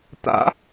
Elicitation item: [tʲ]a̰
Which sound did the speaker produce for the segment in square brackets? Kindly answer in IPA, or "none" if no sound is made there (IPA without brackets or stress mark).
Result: t̪